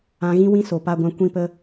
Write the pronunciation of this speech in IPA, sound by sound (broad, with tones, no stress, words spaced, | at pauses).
ã˧ɣĩ˦wĩ˦so˨ pa˧ɡʷã˧ kʷĩ˦pə˦